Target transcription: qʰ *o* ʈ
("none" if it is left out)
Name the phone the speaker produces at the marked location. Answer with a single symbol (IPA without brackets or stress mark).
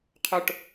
o